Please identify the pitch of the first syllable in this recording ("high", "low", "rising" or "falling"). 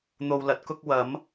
low